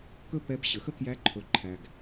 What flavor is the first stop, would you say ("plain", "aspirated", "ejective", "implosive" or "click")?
plain